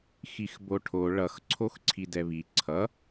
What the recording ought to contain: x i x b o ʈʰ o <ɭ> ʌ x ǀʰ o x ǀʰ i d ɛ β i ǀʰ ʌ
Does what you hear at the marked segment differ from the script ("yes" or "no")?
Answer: no